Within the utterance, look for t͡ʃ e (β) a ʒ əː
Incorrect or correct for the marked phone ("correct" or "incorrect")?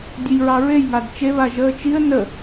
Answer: correct